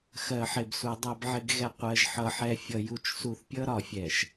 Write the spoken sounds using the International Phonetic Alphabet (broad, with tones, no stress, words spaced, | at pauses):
xɜ˨ħɪ˨bsu˨ dˤɜ˨bʕɪ˨ɡɣɛ˨ qʷɜ˨ʒħʌ˨ħɛ˨fʲʌ˨ ju˨t͡ʃsu˨θpʲʌ˦ ɾɒ˨fʲɛ˨ʃ